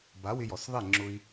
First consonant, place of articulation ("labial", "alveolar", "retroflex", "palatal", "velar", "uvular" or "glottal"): labial